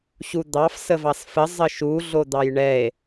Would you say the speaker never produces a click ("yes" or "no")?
yes